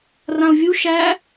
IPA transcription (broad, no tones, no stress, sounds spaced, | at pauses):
r ã ʊ̯ vʲ u ʃ æ